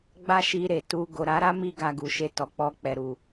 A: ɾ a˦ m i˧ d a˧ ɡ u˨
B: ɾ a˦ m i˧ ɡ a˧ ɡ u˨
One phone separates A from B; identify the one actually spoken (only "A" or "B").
B